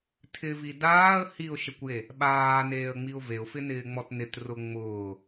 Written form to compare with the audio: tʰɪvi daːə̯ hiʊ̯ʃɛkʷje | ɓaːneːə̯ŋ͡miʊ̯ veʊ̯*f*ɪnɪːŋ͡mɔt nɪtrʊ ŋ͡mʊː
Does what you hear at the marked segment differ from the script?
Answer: no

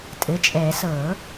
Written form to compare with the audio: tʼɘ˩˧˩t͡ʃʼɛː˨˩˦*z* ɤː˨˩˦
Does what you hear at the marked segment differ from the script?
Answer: yes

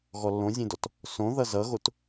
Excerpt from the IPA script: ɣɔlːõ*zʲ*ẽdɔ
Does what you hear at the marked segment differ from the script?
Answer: no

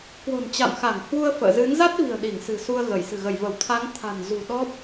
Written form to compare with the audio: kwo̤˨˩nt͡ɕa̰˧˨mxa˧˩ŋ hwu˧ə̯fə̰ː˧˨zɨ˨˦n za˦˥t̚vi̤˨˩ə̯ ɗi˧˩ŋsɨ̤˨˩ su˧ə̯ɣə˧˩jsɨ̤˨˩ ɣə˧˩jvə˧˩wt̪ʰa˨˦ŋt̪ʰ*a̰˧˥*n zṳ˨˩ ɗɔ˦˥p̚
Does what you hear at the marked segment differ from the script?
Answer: yes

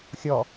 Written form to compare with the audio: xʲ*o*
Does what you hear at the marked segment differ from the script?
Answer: yes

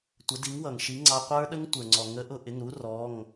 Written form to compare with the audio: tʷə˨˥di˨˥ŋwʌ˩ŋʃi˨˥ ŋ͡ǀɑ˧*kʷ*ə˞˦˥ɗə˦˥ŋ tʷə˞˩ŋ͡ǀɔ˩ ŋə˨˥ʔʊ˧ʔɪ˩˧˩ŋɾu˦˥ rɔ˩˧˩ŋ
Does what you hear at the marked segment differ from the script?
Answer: yes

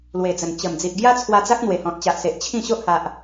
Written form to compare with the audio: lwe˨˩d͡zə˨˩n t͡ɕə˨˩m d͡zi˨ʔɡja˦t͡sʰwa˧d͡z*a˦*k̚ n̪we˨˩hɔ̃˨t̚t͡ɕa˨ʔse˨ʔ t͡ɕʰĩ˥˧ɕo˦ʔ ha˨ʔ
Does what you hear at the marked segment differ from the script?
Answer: no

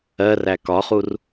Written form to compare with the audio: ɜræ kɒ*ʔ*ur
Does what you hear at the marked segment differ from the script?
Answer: yes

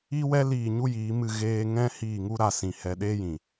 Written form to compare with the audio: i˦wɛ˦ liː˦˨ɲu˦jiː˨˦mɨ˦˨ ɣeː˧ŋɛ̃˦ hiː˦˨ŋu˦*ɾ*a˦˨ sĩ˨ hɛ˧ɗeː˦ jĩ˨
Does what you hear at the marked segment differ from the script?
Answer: no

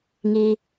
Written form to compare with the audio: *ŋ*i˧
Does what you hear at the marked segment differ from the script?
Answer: no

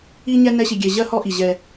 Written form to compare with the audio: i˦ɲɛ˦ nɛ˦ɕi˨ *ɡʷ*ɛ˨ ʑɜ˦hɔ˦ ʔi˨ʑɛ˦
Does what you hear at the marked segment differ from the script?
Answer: yes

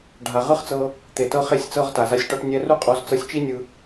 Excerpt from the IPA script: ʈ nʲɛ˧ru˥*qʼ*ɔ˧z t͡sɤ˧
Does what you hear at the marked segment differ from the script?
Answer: no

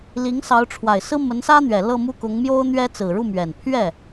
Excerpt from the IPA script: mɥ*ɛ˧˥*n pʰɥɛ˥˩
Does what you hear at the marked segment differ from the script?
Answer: yes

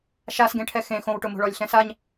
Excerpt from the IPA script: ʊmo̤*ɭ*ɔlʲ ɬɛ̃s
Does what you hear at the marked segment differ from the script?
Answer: no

